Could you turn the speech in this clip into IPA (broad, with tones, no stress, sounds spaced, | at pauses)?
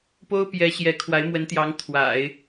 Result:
p o˥ ʊ̯ p j ɛ˧˥ ɕ j ɛ˧˥ kʰ w a˧˥ ɪ̯ m w ə˧˥ n t̪ j ɑ˧˥ ŋ t̪ʰ w a̰˨˩˦ ɪ̯